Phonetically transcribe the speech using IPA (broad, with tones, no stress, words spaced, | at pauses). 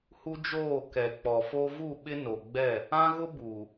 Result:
hu˦d͡ʒoː˦˨kɛ˨ k͡pɔ˨fo˦ vu˦˨ɓɪ˦ no˨ɡ͡bɛ˦˨ | ã˦ɣʊ˦ buː˨